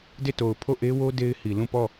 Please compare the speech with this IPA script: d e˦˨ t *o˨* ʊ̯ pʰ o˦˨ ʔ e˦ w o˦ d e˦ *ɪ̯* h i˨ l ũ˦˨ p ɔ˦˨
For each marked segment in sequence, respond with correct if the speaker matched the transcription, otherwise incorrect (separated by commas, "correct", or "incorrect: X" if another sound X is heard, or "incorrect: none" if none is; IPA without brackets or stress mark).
correct, correct